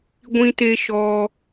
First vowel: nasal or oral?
nasal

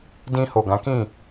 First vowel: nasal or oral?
nasal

